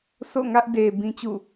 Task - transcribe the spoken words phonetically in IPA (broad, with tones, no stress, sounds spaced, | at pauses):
s o̰˦˨ ŋ ä˦ ʔ d e˨ b ĩ˦ t͡ɕ ṵ˦˨